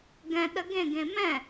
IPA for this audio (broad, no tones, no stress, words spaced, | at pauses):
ɡɛ̃ ɗəɡẽɡẽ mɛ̃